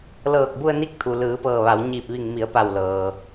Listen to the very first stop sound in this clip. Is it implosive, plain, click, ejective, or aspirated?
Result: plain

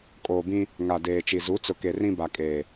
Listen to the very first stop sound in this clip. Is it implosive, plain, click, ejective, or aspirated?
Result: ejective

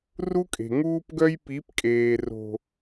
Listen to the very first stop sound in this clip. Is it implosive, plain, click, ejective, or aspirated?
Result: ejective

